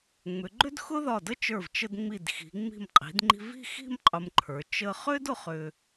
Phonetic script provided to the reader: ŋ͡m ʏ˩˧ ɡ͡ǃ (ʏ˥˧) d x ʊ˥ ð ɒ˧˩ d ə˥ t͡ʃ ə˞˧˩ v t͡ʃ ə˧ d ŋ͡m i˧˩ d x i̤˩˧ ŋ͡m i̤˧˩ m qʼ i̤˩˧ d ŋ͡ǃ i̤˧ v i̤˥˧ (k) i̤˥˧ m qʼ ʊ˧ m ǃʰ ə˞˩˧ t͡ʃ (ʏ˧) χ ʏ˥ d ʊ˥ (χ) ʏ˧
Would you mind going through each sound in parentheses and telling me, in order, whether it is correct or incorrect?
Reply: incorrect, incorrect, incorrect, correct

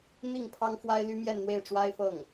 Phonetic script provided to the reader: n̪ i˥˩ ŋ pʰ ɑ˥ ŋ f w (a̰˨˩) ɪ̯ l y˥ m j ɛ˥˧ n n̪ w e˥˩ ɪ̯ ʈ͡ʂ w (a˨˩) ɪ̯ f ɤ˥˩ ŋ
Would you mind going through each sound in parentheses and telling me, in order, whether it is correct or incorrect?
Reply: incorrect, incorrect

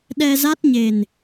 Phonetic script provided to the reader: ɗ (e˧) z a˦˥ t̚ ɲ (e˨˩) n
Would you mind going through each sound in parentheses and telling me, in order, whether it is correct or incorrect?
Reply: incorrect, correct

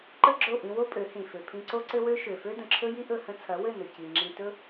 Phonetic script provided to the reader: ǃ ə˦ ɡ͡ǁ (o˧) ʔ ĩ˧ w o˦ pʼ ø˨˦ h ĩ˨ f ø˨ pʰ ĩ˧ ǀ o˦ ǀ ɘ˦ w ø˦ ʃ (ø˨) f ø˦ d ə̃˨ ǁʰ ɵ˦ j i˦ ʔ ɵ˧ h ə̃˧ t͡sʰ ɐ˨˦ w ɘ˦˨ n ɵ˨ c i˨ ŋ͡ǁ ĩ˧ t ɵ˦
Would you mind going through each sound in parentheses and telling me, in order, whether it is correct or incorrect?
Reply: incorrect, correct

